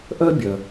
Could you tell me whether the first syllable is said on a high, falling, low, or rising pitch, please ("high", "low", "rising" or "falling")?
high